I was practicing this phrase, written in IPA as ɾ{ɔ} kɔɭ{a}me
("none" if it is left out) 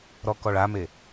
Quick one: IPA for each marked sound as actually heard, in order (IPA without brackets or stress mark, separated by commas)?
ɔ, a